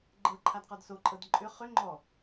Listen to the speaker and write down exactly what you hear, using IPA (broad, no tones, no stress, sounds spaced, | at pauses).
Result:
ɡ͡ǃ ɤ ǃʰ a d q ɔ d s o ǃʼ ɤ d ǃʼ ʏ χ ʏ ŋ͡ǃ ɔ